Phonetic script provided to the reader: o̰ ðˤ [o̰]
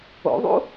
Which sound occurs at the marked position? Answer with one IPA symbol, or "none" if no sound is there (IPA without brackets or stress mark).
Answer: ṵ